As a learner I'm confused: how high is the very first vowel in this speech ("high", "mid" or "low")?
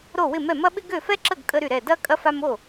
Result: mid